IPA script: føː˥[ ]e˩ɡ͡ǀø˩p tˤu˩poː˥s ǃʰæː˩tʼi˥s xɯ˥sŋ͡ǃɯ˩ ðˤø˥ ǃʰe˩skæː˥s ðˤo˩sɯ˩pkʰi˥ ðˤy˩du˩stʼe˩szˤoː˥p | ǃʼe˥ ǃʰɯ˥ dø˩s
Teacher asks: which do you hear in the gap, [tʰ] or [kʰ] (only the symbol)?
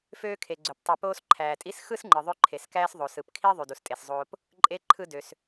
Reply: kʰ